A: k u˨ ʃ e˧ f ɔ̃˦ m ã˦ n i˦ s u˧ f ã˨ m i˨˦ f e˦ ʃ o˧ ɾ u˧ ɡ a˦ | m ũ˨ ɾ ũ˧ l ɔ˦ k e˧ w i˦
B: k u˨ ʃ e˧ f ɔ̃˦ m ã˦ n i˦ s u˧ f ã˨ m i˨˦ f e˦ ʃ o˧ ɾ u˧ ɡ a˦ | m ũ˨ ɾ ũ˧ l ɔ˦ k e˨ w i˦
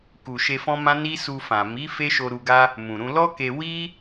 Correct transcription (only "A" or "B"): A